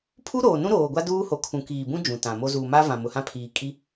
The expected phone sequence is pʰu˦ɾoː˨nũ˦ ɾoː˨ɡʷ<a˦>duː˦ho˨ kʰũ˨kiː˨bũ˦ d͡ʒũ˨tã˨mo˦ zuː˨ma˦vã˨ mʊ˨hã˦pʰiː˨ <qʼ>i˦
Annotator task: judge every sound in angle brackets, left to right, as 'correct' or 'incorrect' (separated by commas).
correct, incorrect